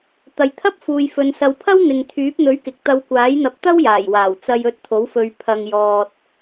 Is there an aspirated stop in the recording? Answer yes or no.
yes